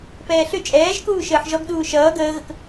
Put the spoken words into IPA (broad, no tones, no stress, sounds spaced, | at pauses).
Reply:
p ɛː ɬ ʏ t͡ʃʼ ɛː ʒ k uː ʃ əː ħ ʒ ɔ ɡ ɗ uː ʃ ʌː ɡ əː ɣ ə k